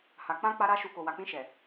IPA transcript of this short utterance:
h a˨ k͡p ã˧ k͡p a˦ ɾ a˦ ʃ u˧ k o˨ w a˨ k͡p ĩ˧ ʃ ɛ˨

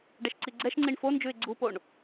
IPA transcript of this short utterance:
ɖ ɛ ʃ ǀ i ɡ͡ǀ ɛ ʃ ŋ͡ǀ i ɳ f o n d͡ʒ ʉ ɪ̯ ɡ͡ǀ u p o ɳ

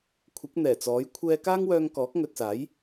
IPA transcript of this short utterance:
kʷʰ ɪ˨˥ k̚ n̪ ɛː˨˩ t͡s ɔː˨˥ j kʷʰ ɛː˧ k aː˥ ŋ w œː˧ ŋ k ɔː˨˥ k̚ ŋ ɵ˨ t̚ s aː˨˥ j

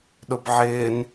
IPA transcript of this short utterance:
ɗ ʊ b ʕ ɪː n

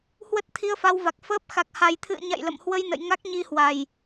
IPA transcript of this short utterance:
h w ə˦˥ t̚ t̪ʰ i˧ ə̯ f a˧ w v a˨˩ k̚ f əː˦˥ p̚ x a˨˩ k̚ h a˨˩ j t̪ʰ ɨ̰˧˨ ə̯ ɲ a̰˧˨ j l ə̰˧˨ m h w ə˧ j n ə̰˧˨ j ŋ a˦˥ k̚ ɲ i˧ h w a˨˩ j

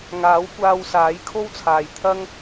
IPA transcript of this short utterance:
ŋ aː˨˥ w kʷ aː˧ w s aː˨˥ j kʰ o˥ w t͡sʰ aː˨ j t̪ʰ ɐ˥ ŋ

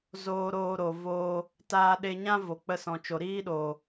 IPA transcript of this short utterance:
z oː˧ ɾ oː˧ ɾ o˨ v oː˧ | t aː˧ ɗ e˧ ɲ ã˦ v o˨ k͡p ə˧ s ɔ̃˨ t͡ʃ o˨ ɾ iː˦ ɗ oː˨

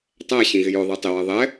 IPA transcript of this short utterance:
tˤ æ ɕ ĩ ɣ ɪ j ʊ ðˤ i tˤ ɪ w ɜ ðˤ ɛ

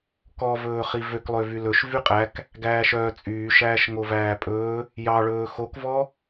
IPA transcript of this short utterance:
k ɔ v ɵː χ i v ø k lˠ ø v y l ɵ ʃ v y qʼ æ k | ɡ æː ʃ œː t͡sʼ yː ʃ æː ʃ ŋ o v æː pʼ ɵː | j ɑ ɭ ɵː x o k v ɔ

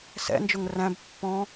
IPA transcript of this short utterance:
s ɛ̰ n d͡ʒ ʊ ŋ r æ̃ b pː ɔ̃

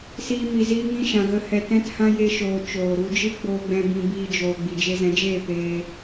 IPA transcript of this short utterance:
s iː˦ m i˧ z iː˦ ŋ ĩ˦ ʃ ã˧ ɣ ə˦ h ɛ˧ t ɛ̃˦ t h ã˦ j e˧ ʃ oː˨ t͡ʃ oː˨ ɾ u˧ d͡ʒ ɨ˦ ɡ͡b oː˧ ɡ͡b ɛ̃˧ b ĩ˧ b iː˧ d͡ʒ oː˨ ɡ͡b i˨ d͡ʒ e˧ z ɛ̃˨˦ d͡ʒ eː˦˨ p eː˧

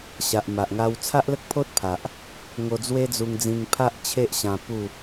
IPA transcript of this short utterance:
ɕ a˨ ʔ m a˨ ʔ ŋ a˧ w t͡sʰ a˦ ʔ l ə˦ k̚ pʰ o˦ t̚ pʰ a˨ ʔ | ŋ o˧ d͡z w e˦ d͡z u˧ ŋ d͡z ĩ˧ ŋ pʰ a˦ ʔ t͡ɕʰ e˦ ʔ ɕ ã˧ p u˥˧

